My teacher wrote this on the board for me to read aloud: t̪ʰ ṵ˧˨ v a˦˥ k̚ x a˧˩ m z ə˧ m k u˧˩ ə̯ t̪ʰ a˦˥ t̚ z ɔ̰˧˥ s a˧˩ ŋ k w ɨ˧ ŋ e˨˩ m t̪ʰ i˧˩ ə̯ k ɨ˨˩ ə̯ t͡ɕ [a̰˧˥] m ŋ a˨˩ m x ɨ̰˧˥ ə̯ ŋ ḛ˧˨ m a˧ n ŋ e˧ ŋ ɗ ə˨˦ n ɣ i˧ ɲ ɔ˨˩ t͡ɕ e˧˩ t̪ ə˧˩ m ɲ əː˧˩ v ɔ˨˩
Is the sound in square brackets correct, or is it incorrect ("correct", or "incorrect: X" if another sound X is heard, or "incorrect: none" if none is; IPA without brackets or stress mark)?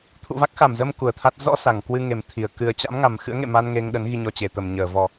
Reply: correct